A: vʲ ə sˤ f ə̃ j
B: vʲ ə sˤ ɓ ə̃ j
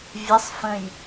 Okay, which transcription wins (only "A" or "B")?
A